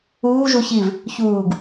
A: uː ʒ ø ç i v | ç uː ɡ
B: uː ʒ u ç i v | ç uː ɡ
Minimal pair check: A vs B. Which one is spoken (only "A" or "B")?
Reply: B